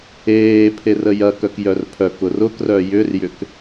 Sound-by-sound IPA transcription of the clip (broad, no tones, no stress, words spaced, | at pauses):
eːpʰer əjɐkœk jœrpʰœkʊr ʊkrœ jʏrjʏk